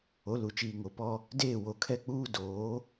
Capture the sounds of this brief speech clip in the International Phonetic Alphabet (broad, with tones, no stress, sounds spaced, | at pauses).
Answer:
o˨˦ l u˨ t͡ʃ iː˨ ŋ o˨ p ɔ˦ | d eː˦˨ w o˨ kʰ ɛ˦ k͡p uː˦ d oː˨˦